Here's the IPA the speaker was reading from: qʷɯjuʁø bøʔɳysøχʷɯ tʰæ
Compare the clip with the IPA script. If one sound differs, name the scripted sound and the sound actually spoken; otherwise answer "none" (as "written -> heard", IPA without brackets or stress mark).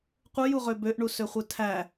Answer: y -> u